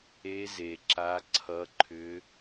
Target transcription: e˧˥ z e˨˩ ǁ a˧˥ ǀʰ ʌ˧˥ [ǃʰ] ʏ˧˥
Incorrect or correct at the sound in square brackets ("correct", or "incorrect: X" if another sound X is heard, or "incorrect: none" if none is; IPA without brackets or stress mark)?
correct